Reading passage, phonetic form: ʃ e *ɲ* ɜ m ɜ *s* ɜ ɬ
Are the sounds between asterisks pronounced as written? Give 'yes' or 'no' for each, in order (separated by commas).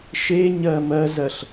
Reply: yes, no